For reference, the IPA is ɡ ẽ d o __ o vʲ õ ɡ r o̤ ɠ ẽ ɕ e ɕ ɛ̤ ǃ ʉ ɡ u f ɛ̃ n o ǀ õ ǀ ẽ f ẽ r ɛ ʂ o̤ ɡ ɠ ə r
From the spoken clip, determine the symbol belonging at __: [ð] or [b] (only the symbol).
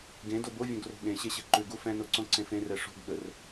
b